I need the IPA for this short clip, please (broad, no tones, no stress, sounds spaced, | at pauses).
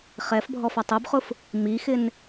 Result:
χ ɛ f bʱ ɔ f a tˤ o b χ ʊ f | m i x ɪ n